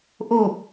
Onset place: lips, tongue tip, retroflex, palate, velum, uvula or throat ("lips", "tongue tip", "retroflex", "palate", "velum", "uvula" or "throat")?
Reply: throat